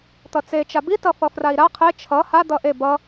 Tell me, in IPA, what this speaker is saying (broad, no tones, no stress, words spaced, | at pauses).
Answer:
t̪ʌt͡se t͡ʃabi tʌfʌfrai̯ɾa qʰe t͡ʃʰʌ ha d̪ʌʔe bʌ